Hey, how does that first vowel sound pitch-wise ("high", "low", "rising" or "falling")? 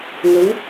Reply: rising